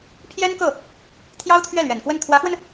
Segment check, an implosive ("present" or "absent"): absent